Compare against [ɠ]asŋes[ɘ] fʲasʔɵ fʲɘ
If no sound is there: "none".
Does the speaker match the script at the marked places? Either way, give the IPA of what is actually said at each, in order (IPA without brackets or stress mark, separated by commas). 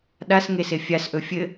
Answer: ɗ, e